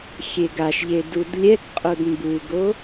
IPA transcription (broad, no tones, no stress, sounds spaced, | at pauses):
xʲ e ɡ a ʃ ʎ e d u d lʲ ɛ k qʼ o d m b u ɡ o